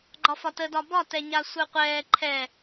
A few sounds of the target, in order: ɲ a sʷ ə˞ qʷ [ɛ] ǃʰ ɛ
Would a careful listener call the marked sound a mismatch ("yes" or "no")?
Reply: yes